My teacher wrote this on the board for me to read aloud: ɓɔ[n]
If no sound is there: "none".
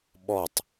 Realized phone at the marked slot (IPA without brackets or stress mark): tˤ